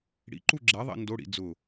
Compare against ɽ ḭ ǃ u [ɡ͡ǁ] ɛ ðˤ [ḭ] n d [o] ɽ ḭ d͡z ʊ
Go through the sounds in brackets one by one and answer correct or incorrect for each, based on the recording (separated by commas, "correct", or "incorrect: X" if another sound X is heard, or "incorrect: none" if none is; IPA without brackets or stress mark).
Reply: correct, correct, correct